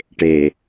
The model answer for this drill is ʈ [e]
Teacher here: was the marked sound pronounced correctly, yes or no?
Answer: yes